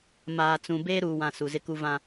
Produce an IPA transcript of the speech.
maː˨t͡sũ˨ beː˦ɾuː˨wã˨ su˨zɪ˦ku˦ vã˦

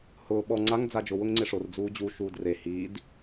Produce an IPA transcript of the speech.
hʊː ɓɔ ŋ͡ǀaŋ d͡zad͡ʒʊ wʊŋŋ͡ǀeʂor d͡zuːd͡ʑu ʃuːdre hiːd

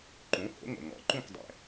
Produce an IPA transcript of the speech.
ǃũ˩˥ho̰˩˥ŋo̰˩ ŋɔ̰˩ǃũ˥˩kdˤɛ̰˩

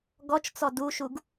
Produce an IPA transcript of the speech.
ɡɔt͡ʃt͡sɔ duʃuɡ

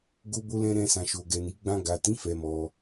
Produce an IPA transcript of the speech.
ɡo˧bo˧lɛ̃˧ ɾɛ̃˧ sã˨ʃo˨ɡɛ˨ni˨˦ ɡ͡bã˧ɡa˨tĩ˨˦ fɛ˧mɔ˧

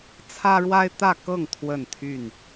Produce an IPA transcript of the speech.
t͡sʰä˦ɻwa˦ɪ̯t̪ä˥˨ kɤ˥˨ŋ t̪ʰwə˥˨nt̪ʰy˥˨n

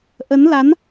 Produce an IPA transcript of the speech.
ʔə˨˦n la˨˦n

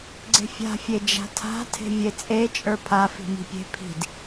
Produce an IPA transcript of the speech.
ɡ͡ǀe̤fʲa̤ fʲed͡ʒa̤tʰa̤ tʰe̤vʲet͡sʼe t͡ʃʼə˞pʰa fi̤mi̤pʲe̤ pʰi̤d

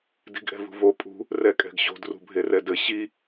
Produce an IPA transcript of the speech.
di̤ɡʔɛ̤vṳvo pʼṳ | rɛkʼɛ̤ɡɕo̤d rṳbʱerɛdɘ ɕi

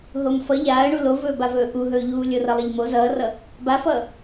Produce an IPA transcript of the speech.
ɦomfʌ ʎaːə̯ɳu lovɵːbavɵː ʔuɦɵːʎuː lʲorʌlˠʌʎmo zʌːrʌ | bafʌː

